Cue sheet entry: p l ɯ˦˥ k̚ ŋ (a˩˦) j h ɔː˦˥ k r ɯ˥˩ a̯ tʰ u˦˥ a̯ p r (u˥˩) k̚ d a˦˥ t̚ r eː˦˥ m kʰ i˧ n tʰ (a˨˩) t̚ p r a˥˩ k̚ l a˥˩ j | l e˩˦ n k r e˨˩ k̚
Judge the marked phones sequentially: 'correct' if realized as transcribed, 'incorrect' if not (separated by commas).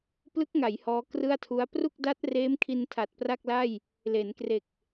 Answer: correct, correct, correct